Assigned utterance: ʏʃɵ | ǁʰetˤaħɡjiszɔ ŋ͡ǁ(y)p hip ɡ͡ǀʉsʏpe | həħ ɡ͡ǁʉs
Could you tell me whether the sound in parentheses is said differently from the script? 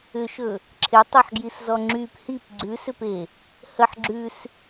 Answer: no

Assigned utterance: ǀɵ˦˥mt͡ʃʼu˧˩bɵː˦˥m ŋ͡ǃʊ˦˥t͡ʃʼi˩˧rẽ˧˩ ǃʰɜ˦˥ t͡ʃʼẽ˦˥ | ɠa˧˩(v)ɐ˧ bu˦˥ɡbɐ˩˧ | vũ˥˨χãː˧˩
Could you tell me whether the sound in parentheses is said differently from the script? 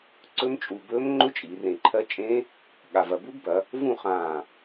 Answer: no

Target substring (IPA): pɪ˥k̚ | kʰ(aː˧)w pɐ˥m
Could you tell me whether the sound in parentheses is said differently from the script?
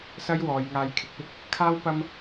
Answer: yes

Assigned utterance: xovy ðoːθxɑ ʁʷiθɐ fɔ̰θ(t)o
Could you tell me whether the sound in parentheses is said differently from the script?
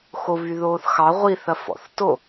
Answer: no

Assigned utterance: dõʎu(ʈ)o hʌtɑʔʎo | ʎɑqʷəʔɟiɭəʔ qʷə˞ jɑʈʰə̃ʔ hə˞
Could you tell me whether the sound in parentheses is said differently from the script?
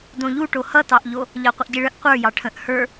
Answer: no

